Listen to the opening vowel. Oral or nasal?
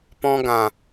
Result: nasal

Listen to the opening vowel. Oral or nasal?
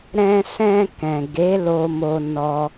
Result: nasal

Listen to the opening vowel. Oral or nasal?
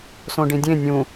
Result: nasal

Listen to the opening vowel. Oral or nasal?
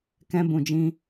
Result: nasal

